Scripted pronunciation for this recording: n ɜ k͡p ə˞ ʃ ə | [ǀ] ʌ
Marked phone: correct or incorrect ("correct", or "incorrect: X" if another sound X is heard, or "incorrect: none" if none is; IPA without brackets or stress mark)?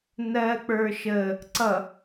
correct